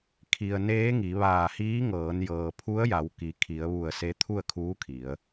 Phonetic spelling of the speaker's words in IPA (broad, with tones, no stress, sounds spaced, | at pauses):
kʰ i˩ ə̯ n eː˧˥ ŋ i˩˧ ʋ aː˧˩ h iː˧˥ ŋ ɤː˩˧ n j ɤː˩ pʰ u˧˥ ə̯ j a˩˧ w k i˩ kʰ i˩˧ ə̯ ʋ u˧˩ ə̯ s e˧˥ t̪ʰ u˥˨ ə̯ kʰ uː˧˥ kʰ i˩˧ ə̯